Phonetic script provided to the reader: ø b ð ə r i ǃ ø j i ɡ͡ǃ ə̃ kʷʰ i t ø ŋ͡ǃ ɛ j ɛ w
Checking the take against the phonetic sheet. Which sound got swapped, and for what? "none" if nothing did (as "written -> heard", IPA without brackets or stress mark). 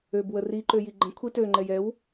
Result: ð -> w